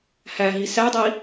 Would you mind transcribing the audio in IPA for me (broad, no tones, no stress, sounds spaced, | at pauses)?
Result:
h æ ɦ i s æ dˤ i